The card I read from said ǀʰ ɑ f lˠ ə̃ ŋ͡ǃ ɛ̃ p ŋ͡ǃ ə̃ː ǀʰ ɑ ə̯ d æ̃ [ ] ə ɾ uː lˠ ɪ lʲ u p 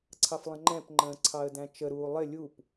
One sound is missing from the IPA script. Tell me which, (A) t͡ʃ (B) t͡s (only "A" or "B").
A